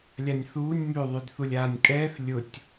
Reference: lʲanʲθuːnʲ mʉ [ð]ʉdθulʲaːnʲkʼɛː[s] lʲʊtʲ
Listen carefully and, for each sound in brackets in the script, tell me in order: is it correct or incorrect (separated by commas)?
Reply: incorrect, incorrect